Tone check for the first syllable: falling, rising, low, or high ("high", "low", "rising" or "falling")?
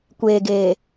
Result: low